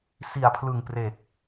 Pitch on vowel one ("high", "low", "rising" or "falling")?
low